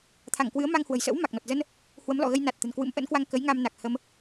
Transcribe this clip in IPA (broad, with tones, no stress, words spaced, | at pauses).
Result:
t̪ʰa˧˩ŋkwɨ˨˦ə̯ma˧ŋhwə̤˨˩j sə̰˧˥wma˨˩k̚nɔ˨˩t̚zə˧n | hwə˨˦mlɔ̰˧˨ɣə˧jna˨˩t̚ t̪ə̤˨˩nkwɨ̰˧˥mʔə̰˧˥nkwa˧ŋ kə˨˦j ŋa˧m na˨˩k̚ hə˧m